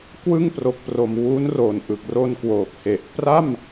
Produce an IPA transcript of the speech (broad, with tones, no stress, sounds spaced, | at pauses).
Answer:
k w ɯ˥˩ ŋ p r o˨˩ k̚ p r o˨˩ m w u˦˥ n r o˨˩ n ʔ ɯ˨˩ k̚ r o˧ n k w oː˨˩ k̚ h e˨˩ ʔ p r a˥˩ m